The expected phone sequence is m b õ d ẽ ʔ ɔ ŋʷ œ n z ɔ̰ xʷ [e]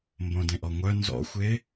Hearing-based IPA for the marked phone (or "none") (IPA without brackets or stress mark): e